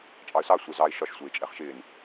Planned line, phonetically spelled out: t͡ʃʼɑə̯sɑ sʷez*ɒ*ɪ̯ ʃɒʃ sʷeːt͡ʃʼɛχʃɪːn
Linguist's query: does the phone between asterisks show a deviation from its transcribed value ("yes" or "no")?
yes